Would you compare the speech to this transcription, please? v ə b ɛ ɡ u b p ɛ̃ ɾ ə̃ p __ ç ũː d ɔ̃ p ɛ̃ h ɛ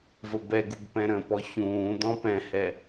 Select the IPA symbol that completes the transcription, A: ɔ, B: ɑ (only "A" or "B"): A